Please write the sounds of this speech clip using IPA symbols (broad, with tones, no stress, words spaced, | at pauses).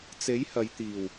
t͡se˨˥j hɐ˨˧jt̪iː˨˩w